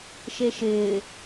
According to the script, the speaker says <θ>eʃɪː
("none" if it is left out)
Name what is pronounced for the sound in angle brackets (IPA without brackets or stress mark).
ʃ